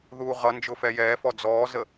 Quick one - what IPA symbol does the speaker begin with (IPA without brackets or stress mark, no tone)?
ð